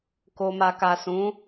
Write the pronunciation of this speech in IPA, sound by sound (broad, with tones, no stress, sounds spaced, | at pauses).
k o˨ m a˨ k a˨ s ũ˨˦